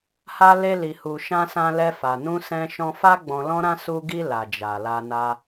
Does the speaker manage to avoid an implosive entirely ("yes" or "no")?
yes